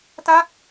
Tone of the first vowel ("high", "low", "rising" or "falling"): falling